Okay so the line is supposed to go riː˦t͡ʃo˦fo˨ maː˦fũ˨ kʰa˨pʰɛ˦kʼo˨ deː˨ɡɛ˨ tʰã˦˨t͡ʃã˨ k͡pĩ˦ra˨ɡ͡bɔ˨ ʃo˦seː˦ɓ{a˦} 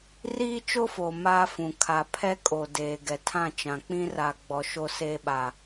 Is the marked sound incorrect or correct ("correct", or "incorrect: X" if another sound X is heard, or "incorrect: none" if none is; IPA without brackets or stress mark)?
correct